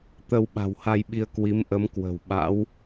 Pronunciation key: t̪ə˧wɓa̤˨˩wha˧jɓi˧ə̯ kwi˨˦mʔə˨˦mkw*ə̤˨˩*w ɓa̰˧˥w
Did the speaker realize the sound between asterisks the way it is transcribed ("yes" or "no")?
yes